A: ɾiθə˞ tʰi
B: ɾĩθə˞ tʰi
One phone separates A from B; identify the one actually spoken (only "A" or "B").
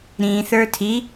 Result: B